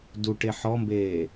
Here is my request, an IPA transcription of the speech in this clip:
duʈe ħɔmbeː

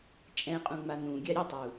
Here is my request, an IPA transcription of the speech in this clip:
t͡ʃʼɛ̃qʼũŋ͡ma nũɡʲa ɾʲətˤu

